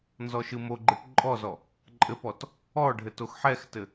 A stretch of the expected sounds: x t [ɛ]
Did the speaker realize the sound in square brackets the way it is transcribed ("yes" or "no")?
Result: no